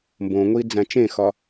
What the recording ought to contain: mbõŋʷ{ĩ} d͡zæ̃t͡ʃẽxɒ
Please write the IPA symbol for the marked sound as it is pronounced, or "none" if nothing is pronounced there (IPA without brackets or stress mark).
i